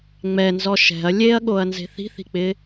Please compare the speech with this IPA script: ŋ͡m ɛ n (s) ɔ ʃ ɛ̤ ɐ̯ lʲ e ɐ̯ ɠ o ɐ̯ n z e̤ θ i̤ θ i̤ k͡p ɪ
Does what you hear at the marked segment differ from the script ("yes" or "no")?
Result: yes